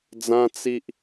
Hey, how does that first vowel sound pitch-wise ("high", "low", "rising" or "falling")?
high